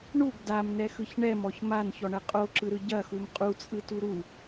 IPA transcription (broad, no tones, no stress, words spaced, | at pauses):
ɳuɡ damnɛxɯç ɳɛmɔç mançɔɳɐ qʼoǁɯɾɯ ɟɐxum qʼut͡sʼɯtu ɾu